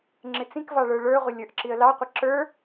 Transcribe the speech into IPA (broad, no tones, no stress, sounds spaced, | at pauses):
ŋ͡ǁ ɪ t͡s ĩ k v ɑ ɭ ə˞ ɭ ə˞ ʁʷ ɪ lʲ ə˞ ʔ ǁ i ə̯ l ɑ qʷ ɪ ǁ ə˞